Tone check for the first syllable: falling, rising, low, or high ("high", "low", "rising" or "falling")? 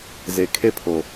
low